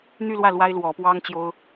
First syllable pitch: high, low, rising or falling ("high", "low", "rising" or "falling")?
falling